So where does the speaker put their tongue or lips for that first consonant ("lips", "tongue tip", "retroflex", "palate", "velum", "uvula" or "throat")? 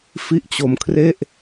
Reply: lips